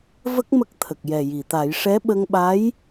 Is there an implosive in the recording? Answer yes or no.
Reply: yes